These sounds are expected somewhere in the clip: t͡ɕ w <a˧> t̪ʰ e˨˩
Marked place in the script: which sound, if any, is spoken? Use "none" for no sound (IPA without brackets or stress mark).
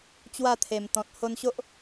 a˥˧